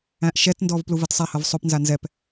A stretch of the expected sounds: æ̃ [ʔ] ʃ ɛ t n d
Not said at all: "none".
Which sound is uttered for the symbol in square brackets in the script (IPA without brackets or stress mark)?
ʔ